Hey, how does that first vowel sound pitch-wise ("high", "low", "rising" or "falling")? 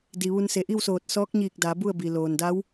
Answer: low